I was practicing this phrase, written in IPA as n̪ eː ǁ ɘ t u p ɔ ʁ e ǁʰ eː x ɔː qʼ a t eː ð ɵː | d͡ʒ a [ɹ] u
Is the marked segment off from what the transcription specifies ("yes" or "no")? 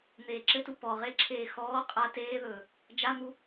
yes